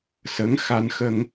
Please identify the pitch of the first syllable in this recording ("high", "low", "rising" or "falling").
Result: rising